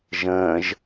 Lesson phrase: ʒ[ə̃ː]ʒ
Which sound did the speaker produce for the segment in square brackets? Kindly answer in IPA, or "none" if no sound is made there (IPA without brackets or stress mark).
ə̃ː